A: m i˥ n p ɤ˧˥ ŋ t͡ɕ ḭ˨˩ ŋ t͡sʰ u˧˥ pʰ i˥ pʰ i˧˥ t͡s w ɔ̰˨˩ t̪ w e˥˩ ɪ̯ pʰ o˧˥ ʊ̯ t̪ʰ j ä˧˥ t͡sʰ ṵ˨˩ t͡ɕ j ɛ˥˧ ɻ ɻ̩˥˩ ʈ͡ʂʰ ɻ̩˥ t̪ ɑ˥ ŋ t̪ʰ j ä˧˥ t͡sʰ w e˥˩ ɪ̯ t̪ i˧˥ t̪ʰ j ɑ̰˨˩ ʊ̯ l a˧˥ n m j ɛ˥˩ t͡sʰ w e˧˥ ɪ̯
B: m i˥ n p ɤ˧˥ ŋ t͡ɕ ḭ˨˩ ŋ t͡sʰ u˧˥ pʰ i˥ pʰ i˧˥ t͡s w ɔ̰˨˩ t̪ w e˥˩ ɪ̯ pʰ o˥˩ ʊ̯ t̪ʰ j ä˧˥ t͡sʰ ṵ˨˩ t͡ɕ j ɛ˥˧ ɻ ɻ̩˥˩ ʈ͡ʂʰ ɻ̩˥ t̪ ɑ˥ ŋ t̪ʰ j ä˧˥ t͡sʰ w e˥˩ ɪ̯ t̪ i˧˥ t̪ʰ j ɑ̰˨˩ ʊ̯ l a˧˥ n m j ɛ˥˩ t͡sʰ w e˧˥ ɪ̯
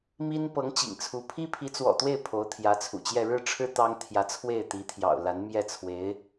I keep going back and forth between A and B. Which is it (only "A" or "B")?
A